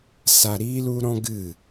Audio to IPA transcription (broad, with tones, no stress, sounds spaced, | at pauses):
s a˧ ɾ iː˦ l u˦ ɾ ɔ̃˦ ɡ ɨ˦˨